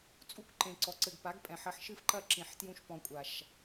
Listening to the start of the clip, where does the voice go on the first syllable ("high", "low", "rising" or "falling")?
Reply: high